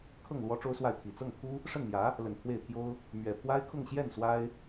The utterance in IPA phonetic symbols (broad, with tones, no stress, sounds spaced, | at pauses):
kʰ ɤ˥˩ ŋ l w ɔ˥ ʈ͡ʂ o˥ ʊ̯ s w a˥˩ ɪ̯ t̪ʰ i˨˩ t͡s ɤ˥˩ ŋ t̪ʰ u˥ | ʂ ə˥˩ n m j ä˧˥ | l ə˨˩ n pʰ w e˥˩ ɪ̯ t̪ʰ j o˥ ʊ̯ | m ɥ ɛ˨˩ pʰ w a˥ ɪ̯ kʰ ʊ˥˧ ŋ ɕ j ɛ˥˩ n s w a˥ ɪ̯